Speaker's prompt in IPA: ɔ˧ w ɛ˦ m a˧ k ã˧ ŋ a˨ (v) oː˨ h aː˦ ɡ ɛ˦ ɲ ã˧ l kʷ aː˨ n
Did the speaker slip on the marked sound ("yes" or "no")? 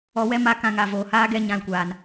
no